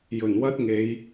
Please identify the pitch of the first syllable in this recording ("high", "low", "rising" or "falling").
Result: low